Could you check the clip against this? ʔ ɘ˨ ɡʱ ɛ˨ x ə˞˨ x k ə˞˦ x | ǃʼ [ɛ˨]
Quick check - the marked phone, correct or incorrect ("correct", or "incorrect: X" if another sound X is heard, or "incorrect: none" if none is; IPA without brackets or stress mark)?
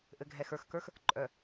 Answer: incorrect: œ˨